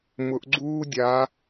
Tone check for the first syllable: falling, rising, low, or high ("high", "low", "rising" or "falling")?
rising